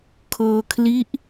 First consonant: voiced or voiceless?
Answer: voiceless